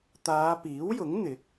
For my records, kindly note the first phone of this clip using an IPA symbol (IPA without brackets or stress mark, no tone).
t̪